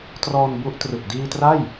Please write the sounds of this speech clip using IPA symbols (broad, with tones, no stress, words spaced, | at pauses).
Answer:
trɔː˧nbu˦˥ʔ trɯ˨˩k̚diː˧tra˥˩j